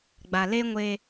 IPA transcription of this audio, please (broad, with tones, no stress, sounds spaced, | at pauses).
ɡ͡b a˨ l e˦ ŋʷ e˦